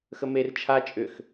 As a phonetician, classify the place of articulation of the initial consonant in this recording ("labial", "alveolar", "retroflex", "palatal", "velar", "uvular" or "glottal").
velar